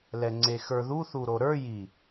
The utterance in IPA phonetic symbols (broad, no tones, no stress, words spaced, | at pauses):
lɛŋ͡ǀexə˞ðu θuɾoɾə˞ ji